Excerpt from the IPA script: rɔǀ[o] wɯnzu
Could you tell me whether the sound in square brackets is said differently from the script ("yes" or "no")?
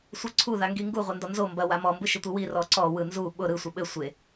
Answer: yes